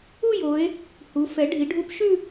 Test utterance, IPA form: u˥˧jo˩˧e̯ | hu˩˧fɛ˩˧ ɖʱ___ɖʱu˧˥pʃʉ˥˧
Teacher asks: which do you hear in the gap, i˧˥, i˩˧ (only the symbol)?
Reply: i˩˧